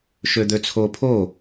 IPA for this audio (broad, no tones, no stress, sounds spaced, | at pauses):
ʃ ø d̪ ø t͡sʰ o pʰ o